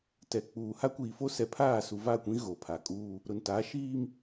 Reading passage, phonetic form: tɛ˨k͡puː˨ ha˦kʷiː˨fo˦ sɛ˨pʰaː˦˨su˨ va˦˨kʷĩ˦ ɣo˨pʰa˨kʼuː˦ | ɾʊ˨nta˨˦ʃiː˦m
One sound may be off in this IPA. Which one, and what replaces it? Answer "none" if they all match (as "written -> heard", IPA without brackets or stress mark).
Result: none